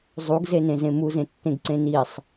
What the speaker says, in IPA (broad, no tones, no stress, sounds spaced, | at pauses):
zˤ u ɡ z e n ẽ z ẽ m u z ẽ tː ẽ ɡ ǀ ẽ n i sˤ